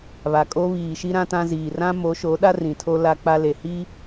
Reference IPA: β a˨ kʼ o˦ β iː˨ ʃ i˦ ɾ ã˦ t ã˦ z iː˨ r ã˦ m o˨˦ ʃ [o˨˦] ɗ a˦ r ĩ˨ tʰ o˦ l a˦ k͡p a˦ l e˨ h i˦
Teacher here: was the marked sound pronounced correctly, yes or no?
yes